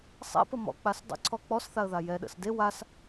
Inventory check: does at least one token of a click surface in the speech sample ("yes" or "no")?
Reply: yes